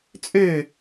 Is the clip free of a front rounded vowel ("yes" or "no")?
no